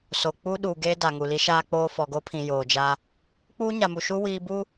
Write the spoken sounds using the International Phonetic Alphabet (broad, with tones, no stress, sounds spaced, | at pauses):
s o˨ k͡p uː˦ ɗ uː˨ ɡ eː˦ d a˨ ŋ u˨ l i˦ ʃ aː˦ k͡p oː˦ f ɔ˨ ɡ o˦ pʰ ĩ˨ j oː˨ d͡ʒ a˦ | k͡p uː˦ ɲ a˨ m u˨ ʃ u˦ w iː˦ b u˦